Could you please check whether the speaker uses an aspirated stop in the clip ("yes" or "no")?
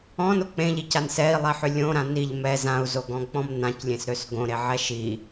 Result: no